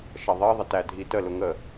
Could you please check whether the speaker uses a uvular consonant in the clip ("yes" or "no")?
no